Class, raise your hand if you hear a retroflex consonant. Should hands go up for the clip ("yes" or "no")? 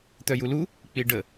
yes